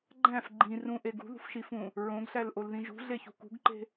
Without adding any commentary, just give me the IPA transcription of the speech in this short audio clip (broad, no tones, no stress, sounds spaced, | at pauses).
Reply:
ɡ͡ǃ æ̃ f ɡ͡ǃ ĩ r ũ ʔ e ɡ ṳ ð ṳ f ʃ i f ũ | ɹ õ ɡ ɬ æ l ʔ o l ð ĩ ʒ ṳ ɮ e ç ṳ k ṳ ɡ ǃ e̤